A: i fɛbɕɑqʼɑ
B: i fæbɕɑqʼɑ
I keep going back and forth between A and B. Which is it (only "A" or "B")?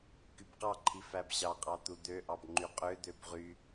B